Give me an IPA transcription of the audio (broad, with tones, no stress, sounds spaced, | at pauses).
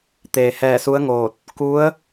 t̪ eː˩ h ɛː˧˩ s u˧˥ ə̯ ŋ oː˧˩ t̚ | k u˧˥ ə̯